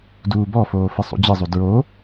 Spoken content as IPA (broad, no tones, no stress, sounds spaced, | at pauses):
d uː b ɔ f oː f ɨ sˤ ṵ d͡ʑ ɨ zˤ u d ɹ o